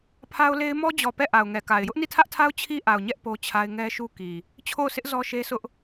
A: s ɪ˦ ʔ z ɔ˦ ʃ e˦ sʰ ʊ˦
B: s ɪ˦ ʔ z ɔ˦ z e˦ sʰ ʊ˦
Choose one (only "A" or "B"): A